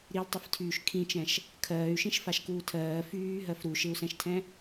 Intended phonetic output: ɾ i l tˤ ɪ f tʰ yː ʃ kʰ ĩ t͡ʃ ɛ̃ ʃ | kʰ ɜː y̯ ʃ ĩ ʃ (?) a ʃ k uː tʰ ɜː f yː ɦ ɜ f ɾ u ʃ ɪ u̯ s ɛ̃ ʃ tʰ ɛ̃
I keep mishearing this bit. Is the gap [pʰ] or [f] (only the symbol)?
f